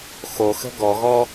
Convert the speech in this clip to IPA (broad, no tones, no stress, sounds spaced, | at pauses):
x o x ə̤ ɡ ɔ ɣ ɔ